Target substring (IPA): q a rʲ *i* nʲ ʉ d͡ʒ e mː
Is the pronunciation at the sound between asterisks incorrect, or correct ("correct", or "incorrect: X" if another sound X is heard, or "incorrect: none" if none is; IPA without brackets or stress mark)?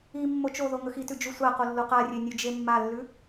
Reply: incorrect: e